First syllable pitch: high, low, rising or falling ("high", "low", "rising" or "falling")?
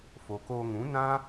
low